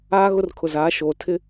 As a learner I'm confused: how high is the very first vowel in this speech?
low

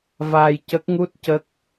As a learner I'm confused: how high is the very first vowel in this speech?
low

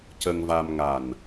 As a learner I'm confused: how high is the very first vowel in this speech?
mid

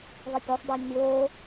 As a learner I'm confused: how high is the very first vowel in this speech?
high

